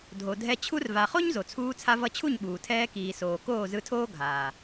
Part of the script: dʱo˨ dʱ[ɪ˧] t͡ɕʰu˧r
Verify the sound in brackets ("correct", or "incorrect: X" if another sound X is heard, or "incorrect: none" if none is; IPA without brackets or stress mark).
incorrect: ɛ˧